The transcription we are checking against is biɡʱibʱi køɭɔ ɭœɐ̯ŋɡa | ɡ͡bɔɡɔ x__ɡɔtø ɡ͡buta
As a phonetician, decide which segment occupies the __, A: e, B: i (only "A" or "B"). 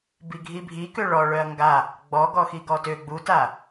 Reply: B